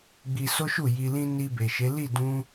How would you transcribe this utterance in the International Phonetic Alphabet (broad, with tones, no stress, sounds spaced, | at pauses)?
ɡ͡b i˧ s o˦ ʃ u˦˨ j i˧ l ĩ˦ n i˧ b e˨ ʃ e˨˦ l i˦˨ d ũ˧